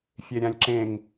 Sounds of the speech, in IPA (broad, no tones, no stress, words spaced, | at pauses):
fʲeɾʲãlʲǁẽŋ